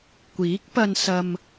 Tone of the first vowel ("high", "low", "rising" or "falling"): rising